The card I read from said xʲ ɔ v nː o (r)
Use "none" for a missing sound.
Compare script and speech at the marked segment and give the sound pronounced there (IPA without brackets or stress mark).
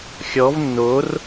r